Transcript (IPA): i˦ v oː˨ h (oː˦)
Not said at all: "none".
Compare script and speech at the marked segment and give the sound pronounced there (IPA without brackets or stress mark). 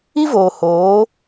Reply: oː˨˦